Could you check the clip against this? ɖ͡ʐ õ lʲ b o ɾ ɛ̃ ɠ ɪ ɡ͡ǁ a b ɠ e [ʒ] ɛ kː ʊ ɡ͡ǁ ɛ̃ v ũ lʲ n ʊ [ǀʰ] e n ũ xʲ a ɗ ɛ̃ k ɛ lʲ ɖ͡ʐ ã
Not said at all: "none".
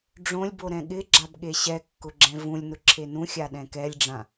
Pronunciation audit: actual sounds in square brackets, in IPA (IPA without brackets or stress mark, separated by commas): ɕ, ǁʰ